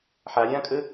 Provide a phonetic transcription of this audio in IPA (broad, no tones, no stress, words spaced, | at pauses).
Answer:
ħaɾʲãːkʼə